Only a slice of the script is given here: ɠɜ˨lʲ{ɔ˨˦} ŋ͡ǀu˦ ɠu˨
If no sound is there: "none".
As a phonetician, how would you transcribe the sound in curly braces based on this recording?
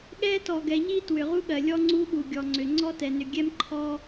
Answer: ɔ˦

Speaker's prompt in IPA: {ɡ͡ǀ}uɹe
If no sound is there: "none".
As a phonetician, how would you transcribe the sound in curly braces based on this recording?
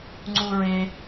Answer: ŋ͡ǀ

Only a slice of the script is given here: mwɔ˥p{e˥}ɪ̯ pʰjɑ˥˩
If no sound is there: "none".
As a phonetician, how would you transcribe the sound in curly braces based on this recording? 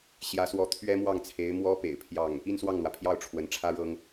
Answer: ḛ˨˩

